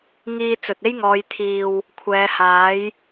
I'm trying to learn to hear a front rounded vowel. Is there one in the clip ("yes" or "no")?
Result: no